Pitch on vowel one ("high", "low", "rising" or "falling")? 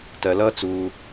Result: low